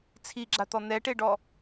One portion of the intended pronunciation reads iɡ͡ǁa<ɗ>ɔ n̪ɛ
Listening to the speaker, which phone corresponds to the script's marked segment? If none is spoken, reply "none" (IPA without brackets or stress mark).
t̪